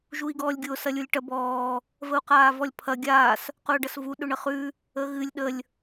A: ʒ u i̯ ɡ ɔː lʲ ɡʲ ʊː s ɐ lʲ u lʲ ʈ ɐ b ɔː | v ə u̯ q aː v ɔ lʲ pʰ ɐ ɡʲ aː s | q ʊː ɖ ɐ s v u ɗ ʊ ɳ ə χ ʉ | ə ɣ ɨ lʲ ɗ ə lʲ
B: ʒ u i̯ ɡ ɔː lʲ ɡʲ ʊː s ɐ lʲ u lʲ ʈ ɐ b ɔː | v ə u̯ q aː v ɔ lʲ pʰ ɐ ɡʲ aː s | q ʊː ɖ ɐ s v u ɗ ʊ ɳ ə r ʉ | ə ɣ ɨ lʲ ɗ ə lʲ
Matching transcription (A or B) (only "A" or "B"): A